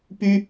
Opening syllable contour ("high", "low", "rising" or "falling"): high